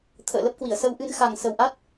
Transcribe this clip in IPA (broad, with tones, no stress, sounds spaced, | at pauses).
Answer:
t̪ʰ ə̰ː˧˨ l ə˦˥ p̚ k w i˧˩ ə̯ s ə˧ w ʔ ɨ˧ n x a˨˩ ŋ s ə˨˩ w ʔ a˦˥ t̚